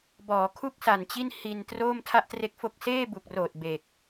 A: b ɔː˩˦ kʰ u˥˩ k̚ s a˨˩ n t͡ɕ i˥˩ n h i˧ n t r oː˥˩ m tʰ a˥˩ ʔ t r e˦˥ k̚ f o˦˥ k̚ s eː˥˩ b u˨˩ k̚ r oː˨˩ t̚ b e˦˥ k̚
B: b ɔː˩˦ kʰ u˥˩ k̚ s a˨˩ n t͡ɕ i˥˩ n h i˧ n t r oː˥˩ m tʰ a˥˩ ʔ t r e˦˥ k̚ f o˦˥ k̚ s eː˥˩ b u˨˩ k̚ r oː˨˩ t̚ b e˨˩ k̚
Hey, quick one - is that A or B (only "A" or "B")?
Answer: B